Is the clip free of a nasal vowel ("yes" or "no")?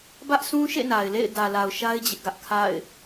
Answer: no